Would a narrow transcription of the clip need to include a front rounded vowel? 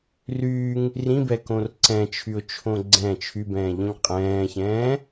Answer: yes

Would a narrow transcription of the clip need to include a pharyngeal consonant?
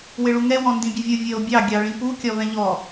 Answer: no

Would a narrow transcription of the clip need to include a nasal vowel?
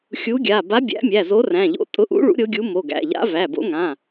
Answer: yes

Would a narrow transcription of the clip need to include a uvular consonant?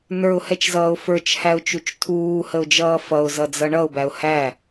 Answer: no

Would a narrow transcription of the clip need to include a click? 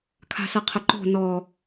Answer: yes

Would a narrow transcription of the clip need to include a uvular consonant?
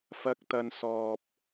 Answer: no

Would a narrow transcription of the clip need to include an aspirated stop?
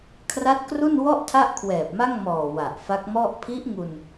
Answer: yes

